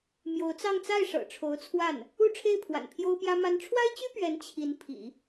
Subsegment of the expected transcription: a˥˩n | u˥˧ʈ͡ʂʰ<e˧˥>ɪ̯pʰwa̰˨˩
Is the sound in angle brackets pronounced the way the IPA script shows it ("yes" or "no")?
no